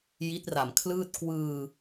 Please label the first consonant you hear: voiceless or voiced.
voiced